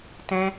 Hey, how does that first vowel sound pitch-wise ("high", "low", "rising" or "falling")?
high